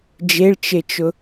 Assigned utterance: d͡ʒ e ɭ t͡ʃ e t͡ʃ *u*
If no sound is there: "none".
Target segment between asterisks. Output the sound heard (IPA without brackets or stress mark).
ʊ